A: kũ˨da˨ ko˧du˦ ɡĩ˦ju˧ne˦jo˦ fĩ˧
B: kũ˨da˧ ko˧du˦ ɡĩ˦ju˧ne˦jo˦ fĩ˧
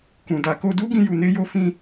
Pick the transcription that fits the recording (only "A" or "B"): A